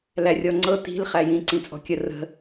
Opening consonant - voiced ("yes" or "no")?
yes